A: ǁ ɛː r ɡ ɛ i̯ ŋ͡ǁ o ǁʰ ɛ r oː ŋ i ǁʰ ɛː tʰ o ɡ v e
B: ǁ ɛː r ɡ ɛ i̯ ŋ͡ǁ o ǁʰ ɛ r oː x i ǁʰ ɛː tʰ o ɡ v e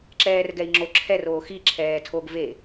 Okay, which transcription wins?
B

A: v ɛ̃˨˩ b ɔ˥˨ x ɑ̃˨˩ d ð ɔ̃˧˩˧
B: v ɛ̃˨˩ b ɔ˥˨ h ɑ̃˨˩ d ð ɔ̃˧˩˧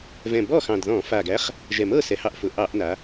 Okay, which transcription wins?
A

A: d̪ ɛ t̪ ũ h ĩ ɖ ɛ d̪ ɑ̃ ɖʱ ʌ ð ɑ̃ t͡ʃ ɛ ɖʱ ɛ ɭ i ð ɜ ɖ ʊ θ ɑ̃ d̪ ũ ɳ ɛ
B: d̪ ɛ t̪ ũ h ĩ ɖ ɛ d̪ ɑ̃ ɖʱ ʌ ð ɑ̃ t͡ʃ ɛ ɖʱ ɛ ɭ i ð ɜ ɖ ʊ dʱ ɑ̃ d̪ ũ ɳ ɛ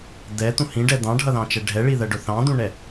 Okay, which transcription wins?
A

